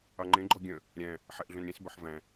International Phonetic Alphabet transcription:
ɑŋ͡ǃẽ ɡ͡ǃɔɡʲœ̃ | ɾʲæ̃ | ħɛʔɮœ̃nɾʲẽs bœħvæ̃

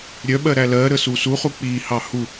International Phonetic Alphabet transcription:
ɾʲœɓɜ ɾælɜɾə susuχu k͡piːhɑ hu

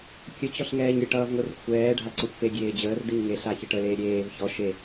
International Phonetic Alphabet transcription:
kʲə t͡ɕɔɬŋɛːɲɾʲəʈ ʌːvŋʷerkʷʰɛː ɖʱaǀɔxʷfe ɡʲeːd͡ʑəːr dɨɲŋe ɬaçəʈə leːɾʲeːv çɔ ʃe

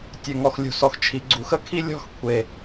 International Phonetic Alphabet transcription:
tʲø˨ŋɔ˨xlʲṳ˨sɔ˨x t͡ʃʰi˨ ɡ͡ǀu˨xə˦kʰi˦ lʲɔ̤˦x kʷʰe˨

